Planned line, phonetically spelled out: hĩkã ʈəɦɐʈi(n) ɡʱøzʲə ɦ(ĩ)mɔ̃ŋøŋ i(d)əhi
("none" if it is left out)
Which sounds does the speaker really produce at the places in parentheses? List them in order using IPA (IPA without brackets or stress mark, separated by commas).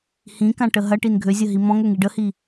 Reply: n, i, ɖ